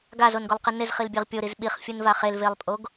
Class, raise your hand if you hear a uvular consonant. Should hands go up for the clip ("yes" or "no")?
yes